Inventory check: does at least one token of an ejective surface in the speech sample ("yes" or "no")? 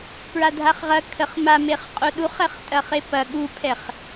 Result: yes